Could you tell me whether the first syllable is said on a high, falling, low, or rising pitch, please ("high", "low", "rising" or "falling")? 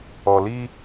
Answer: low